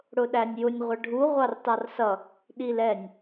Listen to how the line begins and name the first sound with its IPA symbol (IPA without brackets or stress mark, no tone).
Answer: ɽ